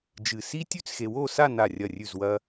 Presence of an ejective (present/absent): absent